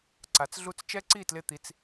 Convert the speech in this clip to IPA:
ǀ a˨˦ t͡s ɮ u˦ t͡s t͡ʃ ɛ˦ ǀ i˦˨ t l ɪ˦˨ t̪ i˦ t͡s

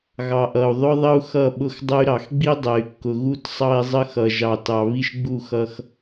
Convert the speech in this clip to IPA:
ɣ ɑ˨ ʔ ʌ˨ u̯ ðˤ ʊ˦ ðˤ ə˦ u̯ x ʌ˦˨ ɓ ʊ˦ x dˤ ə˦ y̯ ɾ ɑ˨ x ɡ͡b i˦ dˤ ɛ˨ y̯ kː ʊ˨ ɣ u˦ t sˤ ɑ˦ i̯ zˤ ə˦ x ʌ˨ ʒ ɑ˨ t ɑ˨ β i˦ ʃ ɡ͡b u˦˨ x ʌ˦ x

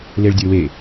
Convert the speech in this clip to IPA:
l e ɭ dʲ ə˞ w e

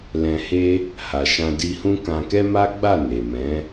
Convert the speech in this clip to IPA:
l ɛ̃˧ h e˦ | h a˨ ʃ ã˧ d i˧ h ũ˦ k ã˧ k ɛ˦ m a˦ ɡ͡b a˦˨ n e˨ m ɛ̃˨˦

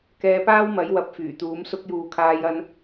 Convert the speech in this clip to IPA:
k ɛː˧ p aː˥ w m ɐ˨˥ j w ɐ˨˥ p̚ f yː˨˩ t̪ uː˨˥ m s ʊ˧ k̚ j uː˨ kʰ aː˧ j ɐ˧ n

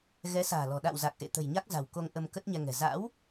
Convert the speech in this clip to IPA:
ɣ ɛ˨˦ s a̤ː˨˩ l ɔ̤˨˩ ɗ a̰˧˨ w z a˨˩ k̚ ʔ ḛ˧˨ t̪ ə̤˨˩ j ɲ a˦˥ k̚ z a̤˨˩ w k o˧ ŋ ʔ ə˧ m k ə˦˥ t̚ ɲ ɛ˧ ŋ ɛ̤˨˩ z a̰˧˥ w

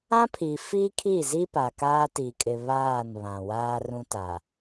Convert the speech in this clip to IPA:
ã˦ pʰ i˨ f i˦ kʰ i˦˨ z i˦ p a˨ k aː˦ t i˨ kʼ ɪ˨ β aː˦˨ n β ã˨ w aː˦ r ũ˦ t a˨

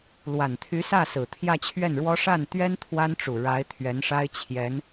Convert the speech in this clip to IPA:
l w a˨˩ n t̪ʰ y˧˥ s ä˥˩ s ɹ̩˨˩ t̪ʰ j ä˥˧ t͡ɕʰ ɥ ɛ˥˩ n ɻ w ɔ˥ ʂ a˥˩ n t̪ ɥ ɛ˥ n t̪ʰ w a˥ n ʈ͡ʂ u˨˩ ɻ a˧˥ ɪ̯ t̪ʰ ɥ ɛ˧˥ n ʂ a˥ ɪ̯ t͡ɕʰ j ɛ˧˥ n

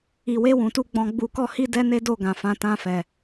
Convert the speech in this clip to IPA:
i˨ w e˧ w ũ˨ t u˧ ɡ͡b ɔ̃˧ ɡ͡b u˧ k ɔ˦ h i˦ d ɛ˦ n e˦ d o˦˨ ɡ ã˨ f ã˨˦ t ã˧ f ɛ˨

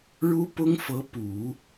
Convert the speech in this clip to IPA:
ɻ u˥ p ʊ˥ ŋ f ɤ˧˥ p u˨˩˦

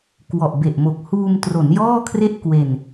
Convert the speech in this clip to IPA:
k w ɔ˨˩ ʔ b e˨˩ ʔ m o˨˩ k̚ h uː˧ m t r o˩˦ n j ɔː˥˩ kʰ r e˥˩ ʔ k w e˧ n

